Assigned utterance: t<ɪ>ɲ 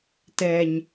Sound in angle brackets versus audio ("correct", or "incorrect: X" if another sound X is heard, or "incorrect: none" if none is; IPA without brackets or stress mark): incorrect: ɛ